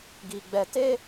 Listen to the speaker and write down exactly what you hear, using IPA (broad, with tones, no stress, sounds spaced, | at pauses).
ɡ i˨ ɡ͡b ɛ˨ t eː˦